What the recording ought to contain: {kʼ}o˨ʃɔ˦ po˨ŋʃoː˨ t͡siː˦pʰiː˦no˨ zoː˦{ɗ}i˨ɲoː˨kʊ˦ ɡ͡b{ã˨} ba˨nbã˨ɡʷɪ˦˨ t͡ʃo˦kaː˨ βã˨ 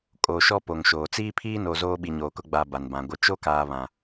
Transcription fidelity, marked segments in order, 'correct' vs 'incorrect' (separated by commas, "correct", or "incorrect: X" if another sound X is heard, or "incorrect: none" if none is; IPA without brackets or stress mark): correct, incorrect: ɓ, incorrect: a˨